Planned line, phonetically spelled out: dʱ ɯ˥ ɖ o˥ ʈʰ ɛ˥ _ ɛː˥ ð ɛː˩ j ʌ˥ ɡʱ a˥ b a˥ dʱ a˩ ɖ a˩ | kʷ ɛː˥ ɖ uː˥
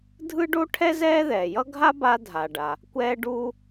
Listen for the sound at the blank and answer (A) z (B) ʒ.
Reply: A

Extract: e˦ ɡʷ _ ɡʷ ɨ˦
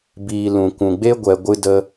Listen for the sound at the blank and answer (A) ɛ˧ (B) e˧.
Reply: A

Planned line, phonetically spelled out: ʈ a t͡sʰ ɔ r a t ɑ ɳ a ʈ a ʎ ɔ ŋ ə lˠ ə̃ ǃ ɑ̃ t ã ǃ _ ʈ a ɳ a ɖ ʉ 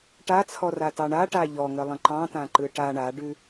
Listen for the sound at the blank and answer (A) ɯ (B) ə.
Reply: A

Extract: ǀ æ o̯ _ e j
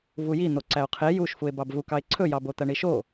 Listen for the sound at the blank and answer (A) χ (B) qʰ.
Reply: B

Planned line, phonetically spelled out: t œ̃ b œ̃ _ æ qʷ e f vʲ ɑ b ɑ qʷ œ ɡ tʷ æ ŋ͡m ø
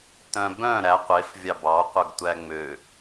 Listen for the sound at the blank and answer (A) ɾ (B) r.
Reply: A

